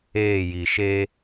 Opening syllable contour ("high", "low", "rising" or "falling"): falling